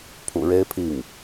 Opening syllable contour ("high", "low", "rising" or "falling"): low